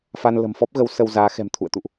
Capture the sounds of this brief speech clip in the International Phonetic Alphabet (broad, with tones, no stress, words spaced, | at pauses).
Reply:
fa˧n lə̤˨˩mfɔ˦˥p̚ɣə˨˦w sə˧wzaː˨˦xɛ̤˨˩mt̪ʰṵ˧˨ə̯ t̪ṵ˧˨ʔ